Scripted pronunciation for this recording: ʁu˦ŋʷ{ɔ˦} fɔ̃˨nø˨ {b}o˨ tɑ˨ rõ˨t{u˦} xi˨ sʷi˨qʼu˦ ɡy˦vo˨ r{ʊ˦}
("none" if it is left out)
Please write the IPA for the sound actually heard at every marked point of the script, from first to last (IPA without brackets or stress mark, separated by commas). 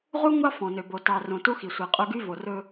ɑ˦, b, u˦, ɵ˦